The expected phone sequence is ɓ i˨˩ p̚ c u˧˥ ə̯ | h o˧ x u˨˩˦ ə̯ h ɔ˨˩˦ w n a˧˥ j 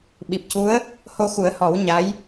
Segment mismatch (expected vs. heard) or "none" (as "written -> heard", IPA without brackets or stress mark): n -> ɲ